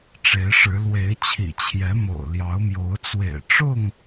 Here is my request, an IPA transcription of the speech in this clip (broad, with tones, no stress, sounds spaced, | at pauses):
ʈ͡ʂ e˨˦ ɪ̯ ʂ ɻ̩˨˦ l w e˨˦ ɪ̯ t͡ɕʰ ḭ˨˩ t͡ɕʰ j ɛ˨˦ m o̰˨˩ ʊ̯ l j ɑ˨˦ ʊ̯ m j o˨˦ ʊ̯ t͡s w ḛ˨˩ ɪ̯ ʈ͡ʂ ʊ˥˨ ŋ